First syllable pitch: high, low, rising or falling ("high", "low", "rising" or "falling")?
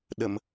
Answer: low